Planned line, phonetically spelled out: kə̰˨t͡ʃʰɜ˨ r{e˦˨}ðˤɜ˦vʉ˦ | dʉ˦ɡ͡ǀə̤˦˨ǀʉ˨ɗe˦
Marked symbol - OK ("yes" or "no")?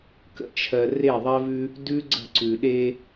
yes